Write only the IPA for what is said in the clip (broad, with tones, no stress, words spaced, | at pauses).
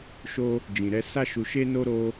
ʃo˦ | d͡ʒĩ˨ɾɛ˧sa˦ʃu˧ ʃe˦no˦ɾo˦